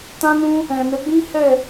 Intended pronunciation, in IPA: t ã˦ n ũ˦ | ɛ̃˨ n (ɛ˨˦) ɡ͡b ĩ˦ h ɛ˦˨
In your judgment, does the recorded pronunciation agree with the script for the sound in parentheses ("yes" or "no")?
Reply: yes